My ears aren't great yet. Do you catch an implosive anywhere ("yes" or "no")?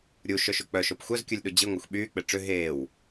yes